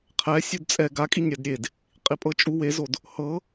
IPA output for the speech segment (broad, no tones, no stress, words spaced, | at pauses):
qʰɛ sʲudt͡sʼɛ ɡakʼiɲ ɾʲadɾʲed | qʼipʼɤt͡ʃʼu wezod | hɤ